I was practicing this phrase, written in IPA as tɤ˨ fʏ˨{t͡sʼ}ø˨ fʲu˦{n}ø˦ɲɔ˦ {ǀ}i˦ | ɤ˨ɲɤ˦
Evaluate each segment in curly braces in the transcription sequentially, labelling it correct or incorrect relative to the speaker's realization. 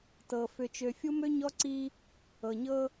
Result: incorrect: t͡ʃ, incorrect: m, correct

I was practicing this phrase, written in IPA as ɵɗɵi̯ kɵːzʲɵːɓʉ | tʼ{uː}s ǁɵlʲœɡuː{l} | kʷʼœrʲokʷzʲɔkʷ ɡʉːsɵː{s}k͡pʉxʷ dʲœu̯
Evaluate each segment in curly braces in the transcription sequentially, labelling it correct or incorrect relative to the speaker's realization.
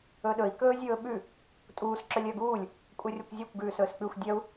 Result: correct, incorrect: lʲ, correct

